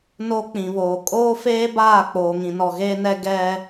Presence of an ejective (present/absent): present